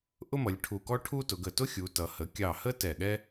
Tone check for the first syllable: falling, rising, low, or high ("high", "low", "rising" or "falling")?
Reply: high